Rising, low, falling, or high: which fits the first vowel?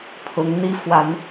rising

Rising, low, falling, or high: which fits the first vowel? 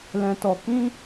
low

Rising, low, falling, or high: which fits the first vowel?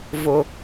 low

